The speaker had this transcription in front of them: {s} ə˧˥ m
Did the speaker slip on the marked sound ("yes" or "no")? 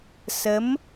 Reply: no